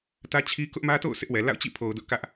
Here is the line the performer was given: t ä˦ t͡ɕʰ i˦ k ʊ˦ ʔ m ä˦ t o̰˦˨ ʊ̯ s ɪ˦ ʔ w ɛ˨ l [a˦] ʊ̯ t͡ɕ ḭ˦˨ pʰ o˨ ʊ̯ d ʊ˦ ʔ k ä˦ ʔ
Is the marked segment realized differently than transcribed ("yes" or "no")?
yes